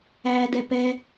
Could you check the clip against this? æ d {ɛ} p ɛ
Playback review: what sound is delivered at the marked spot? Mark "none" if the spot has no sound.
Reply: ɛ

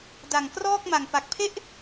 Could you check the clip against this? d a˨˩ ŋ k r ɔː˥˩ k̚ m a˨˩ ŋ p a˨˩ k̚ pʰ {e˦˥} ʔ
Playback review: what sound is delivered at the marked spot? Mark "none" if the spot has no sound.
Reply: e˥˩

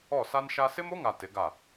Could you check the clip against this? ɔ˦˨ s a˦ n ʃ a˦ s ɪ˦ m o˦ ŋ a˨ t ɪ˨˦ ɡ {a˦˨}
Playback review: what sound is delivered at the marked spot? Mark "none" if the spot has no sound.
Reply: a˦˨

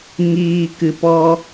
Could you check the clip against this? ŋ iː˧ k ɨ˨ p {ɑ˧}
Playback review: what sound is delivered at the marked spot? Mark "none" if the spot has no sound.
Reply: ɔ˧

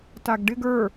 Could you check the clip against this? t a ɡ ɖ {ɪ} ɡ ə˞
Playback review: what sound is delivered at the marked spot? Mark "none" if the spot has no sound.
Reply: ɪ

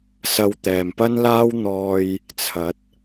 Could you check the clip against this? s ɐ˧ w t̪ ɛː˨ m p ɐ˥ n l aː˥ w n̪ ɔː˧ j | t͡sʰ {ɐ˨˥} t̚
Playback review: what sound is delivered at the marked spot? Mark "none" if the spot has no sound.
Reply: ɐ˨˥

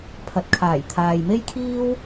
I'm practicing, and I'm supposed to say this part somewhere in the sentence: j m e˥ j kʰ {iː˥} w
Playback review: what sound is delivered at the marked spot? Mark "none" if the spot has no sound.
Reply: iː˥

